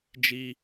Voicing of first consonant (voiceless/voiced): voiced